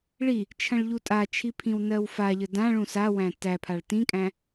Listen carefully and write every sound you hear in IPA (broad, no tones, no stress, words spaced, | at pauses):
ɭi | t͡ʃʰɐ̃ɭʎutʼat͡ʃʰi pʰĩwnɜwfaʎə dãɭũ sawæ̃ tæpʰaɭ tĩkʼæ̃